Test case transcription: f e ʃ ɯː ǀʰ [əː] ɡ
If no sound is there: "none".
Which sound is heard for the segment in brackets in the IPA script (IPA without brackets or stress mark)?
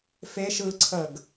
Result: əː